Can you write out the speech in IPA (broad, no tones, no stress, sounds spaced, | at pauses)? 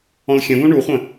ɔ̃ l xʲ ə̃ v ũ ɳ u χʷ ə̃